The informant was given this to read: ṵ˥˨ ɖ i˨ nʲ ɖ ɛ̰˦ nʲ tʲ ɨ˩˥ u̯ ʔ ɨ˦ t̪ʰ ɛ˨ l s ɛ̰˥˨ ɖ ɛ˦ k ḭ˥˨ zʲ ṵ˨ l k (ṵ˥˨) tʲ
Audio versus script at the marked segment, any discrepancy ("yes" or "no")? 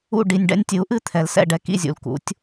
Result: yes